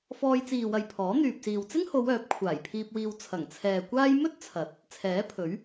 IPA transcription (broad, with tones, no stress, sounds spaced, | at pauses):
f ɔː˧ j t͡s iː˨ w ɐ˨ j pʰ ɔː˨˥ n̪ yː˨ p̚ s iː˨ w t͡s ɪ˥ ŋ h o˨˧ w œː˨˥ p̚ kʷʰ aː˨˩ j pʰ iː˧ p̚ w iː˧ w t͡sʰ ɐ˨˩ ŋ t͡sʰ ɛː˨ kʷ aː˥ j m ɵ˥ t̚ t͡sʰ ɐ˨˥ t̚ | t͡sʰ ɛː˨˥ pʰ ɵ˨˥ ɥ